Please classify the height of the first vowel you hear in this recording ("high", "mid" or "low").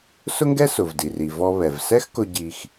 high